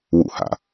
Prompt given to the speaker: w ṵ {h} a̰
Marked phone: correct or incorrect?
correct